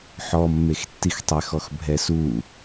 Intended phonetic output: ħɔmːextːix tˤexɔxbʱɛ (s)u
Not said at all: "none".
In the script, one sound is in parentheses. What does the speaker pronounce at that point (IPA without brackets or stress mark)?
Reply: s